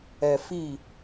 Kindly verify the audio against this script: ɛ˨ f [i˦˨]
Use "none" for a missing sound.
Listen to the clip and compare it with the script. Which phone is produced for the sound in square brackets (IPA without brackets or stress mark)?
i˦˨